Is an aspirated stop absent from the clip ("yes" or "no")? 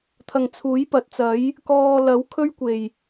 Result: no